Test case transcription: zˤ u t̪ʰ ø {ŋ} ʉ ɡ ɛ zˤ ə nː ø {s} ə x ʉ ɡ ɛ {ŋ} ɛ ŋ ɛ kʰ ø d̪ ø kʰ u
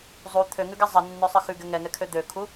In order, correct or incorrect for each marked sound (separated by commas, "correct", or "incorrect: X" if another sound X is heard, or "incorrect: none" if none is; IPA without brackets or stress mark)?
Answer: correct, incorrect: sˤ, correct